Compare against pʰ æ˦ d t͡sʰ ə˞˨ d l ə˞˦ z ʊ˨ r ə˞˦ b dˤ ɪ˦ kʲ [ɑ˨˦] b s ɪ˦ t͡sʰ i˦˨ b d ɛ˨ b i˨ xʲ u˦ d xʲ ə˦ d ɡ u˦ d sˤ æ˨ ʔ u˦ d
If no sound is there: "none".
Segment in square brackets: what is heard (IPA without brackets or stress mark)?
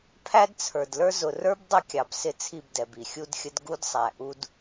ɑ˨